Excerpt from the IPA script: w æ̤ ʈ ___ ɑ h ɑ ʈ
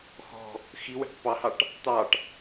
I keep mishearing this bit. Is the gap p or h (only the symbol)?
p